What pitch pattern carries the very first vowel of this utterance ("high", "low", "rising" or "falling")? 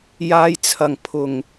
low